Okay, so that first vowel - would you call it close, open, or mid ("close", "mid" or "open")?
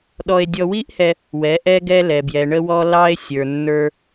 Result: mid